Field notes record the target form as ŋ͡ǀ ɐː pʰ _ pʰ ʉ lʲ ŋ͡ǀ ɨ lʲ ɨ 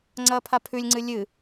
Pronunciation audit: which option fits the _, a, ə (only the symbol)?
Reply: a